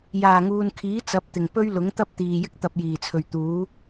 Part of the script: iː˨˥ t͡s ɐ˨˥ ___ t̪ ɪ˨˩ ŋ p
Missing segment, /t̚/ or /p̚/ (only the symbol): p̚